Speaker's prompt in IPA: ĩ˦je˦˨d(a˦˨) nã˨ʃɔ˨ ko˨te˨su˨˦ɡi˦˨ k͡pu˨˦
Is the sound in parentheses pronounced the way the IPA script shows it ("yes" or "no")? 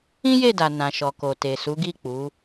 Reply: no